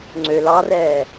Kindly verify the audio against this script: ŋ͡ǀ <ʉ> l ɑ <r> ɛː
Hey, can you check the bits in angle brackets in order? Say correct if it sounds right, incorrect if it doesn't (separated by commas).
incorrect, correct